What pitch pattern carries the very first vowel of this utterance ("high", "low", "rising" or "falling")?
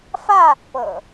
falling